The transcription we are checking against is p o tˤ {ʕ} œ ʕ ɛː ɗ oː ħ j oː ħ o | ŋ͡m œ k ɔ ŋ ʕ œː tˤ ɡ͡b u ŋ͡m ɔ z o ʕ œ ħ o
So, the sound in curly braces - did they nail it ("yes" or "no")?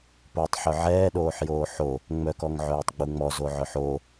no